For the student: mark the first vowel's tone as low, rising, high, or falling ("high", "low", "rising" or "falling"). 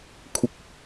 high